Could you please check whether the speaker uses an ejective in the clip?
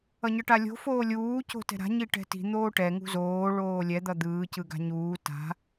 no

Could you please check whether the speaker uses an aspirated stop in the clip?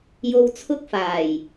yes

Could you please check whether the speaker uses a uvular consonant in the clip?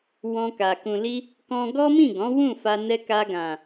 no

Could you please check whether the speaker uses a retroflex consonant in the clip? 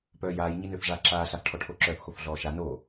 yes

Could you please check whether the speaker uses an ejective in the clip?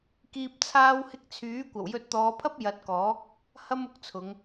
no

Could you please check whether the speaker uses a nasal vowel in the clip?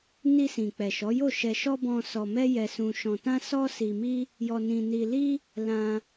yes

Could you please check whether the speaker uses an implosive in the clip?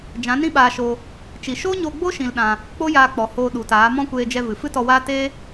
yes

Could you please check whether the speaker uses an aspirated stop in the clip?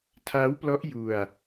yes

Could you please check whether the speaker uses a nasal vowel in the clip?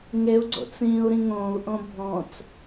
yes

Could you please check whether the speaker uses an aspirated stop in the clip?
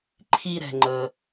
yes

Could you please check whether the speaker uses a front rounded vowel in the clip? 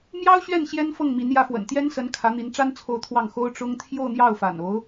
no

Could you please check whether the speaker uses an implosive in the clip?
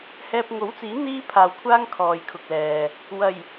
no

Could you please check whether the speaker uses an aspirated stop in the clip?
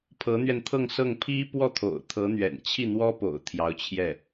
yes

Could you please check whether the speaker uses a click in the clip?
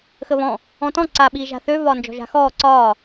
yes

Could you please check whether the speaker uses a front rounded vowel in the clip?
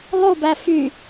yes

